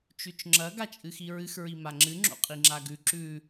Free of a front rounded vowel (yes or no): yes